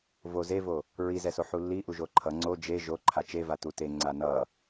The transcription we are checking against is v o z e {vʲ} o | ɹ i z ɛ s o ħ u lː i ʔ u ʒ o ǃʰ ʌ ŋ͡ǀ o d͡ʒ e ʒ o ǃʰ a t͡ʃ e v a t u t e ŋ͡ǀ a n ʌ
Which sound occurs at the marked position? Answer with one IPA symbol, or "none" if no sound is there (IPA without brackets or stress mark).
v